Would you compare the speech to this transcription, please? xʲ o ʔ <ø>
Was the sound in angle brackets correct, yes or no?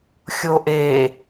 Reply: no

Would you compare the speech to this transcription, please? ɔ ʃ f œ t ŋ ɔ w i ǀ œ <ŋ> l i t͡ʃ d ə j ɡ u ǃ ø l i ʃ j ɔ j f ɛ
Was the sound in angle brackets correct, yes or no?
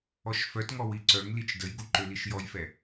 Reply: yes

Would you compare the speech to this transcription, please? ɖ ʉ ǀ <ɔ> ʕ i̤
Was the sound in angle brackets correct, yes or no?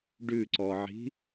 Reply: yes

